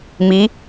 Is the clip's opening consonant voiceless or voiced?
voiced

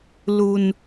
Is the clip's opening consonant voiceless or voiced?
voiced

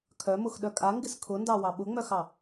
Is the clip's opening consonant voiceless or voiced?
voiceless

